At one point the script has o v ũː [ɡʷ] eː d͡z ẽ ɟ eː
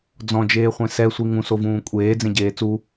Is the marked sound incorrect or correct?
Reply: incorrect